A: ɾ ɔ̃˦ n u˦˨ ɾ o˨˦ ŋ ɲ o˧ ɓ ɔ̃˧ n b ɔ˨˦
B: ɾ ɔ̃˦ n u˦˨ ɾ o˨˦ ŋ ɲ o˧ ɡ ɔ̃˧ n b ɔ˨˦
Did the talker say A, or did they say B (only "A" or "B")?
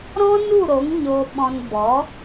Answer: A